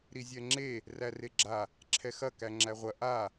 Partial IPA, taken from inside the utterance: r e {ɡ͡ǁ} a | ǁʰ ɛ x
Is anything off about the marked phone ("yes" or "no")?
no